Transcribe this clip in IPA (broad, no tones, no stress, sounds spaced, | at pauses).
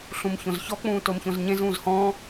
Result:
ɬ ũ m ç õ z ç ɔ k͡p ũː t o m ç õ z ɲ ẽ z ũː z h ɔ̃ː